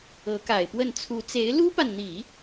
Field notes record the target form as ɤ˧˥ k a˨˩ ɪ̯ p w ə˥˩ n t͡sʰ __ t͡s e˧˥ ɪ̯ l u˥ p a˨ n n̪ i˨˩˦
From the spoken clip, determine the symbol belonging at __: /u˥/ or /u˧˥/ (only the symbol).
u˧˥